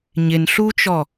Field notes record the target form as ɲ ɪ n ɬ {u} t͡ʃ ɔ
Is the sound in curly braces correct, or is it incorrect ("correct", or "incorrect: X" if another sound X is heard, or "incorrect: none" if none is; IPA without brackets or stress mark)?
correct